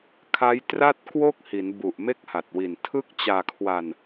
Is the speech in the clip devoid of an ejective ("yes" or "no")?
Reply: yes